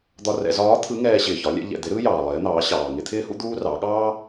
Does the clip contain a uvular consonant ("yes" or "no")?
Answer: no